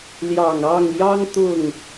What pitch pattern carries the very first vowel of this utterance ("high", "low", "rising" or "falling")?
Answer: low